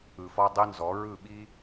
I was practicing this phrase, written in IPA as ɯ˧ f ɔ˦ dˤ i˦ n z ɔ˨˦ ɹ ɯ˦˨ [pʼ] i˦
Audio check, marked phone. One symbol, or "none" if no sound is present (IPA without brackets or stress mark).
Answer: ɓ